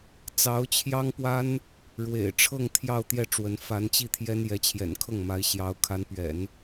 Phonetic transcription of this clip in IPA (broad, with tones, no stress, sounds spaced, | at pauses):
t͡s ɑ˧˥ ʊ̯ t͡ɕʰ j ɑ˥ ŋ p w a˥ n | ɻ w ḛ˨˩ ɪ̯ ʈ͡ʂʰ ɤ˥˧ ŋ t̪ʰ j ɑ˥˧ ʊ̯ t̪ j ɛ˥˩ ʈ͡ʂ w ə˧˥ n f a˧˥ n t͡ɕ i˥˩ t̪ʰ j ɛ˥ n j ɛ˧˥ t͡ɕʰ j ɛ̰˨˩ n kʰ ɤ˥˩ ŋ m a˧˥ ɪ̯ ɕ j ɑ˧˥ ʊ̯ kʰ a˧˥ n p ɥ ɛ̰˨˩˦ n